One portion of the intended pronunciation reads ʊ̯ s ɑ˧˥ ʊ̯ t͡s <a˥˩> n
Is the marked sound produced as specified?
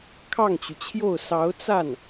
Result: yes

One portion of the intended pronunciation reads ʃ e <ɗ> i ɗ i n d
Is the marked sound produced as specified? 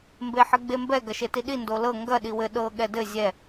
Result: no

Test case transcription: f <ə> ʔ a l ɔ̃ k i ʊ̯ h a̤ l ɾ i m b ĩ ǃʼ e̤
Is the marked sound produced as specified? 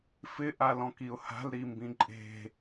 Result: no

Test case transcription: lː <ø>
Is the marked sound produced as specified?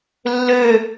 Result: yes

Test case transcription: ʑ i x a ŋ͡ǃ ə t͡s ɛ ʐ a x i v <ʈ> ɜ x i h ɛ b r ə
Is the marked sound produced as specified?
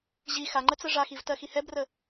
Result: no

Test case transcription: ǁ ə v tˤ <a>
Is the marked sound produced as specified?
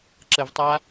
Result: yes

